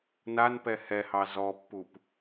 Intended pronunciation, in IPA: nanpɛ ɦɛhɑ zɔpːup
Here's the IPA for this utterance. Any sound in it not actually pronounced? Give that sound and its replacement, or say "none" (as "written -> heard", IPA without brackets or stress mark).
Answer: ɦ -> h